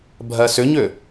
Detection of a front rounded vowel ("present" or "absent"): present